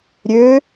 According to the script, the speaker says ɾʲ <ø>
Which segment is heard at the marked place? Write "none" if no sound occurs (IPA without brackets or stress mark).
ø